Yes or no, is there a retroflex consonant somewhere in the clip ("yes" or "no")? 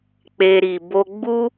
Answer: no